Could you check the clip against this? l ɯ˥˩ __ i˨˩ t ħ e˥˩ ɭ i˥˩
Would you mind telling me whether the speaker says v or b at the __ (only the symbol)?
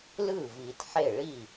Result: v